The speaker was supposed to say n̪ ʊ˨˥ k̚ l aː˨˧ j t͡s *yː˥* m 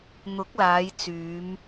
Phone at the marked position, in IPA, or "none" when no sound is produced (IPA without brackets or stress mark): yː˨˧